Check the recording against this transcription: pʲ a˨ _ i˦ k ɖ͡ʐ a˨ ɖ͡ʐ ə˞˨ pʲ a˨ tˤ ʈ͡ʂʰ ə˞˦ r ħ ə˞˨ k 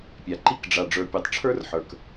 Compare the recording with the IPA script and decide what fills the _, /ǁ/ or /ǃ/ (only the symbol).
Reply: ǃ